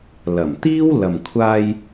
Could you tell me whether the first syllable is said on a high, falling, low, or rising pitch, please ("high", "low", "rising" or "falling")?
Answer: low